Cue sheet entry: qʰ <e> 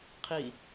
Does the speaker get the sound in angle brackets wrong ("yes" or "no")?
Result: yes